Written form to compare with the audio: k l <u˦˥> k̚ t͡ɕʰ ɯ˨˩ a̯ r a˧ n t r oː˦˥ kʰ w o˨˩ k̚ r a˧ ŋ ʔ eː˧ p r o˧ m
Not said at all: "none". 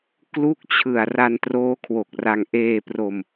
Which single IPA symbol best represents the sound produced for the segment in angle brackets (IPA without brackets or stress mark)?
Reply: u˦˥